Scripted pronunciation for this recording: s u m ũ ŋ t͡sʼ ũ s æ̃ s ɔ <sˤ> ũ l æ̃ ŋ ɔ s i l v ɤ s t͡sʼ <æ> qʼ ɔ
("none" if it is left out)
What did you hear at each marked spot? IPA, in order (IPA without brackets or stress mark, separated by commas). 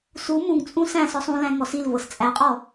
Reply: sˤ, æ